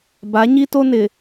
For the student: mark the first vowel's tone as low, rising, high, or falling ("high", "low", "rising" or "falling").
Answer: rising